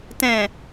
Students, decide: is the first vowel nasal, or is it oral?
nasal